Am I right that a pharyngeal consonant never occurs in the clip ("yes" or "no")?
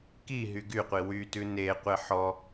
no